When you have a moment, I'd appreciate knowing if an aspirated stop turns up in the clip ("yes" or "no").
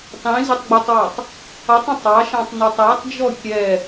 no